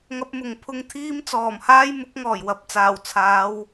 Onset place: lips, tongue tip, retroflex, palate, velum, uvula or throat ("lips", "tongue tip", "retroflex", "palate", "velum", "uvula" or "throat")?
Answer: velum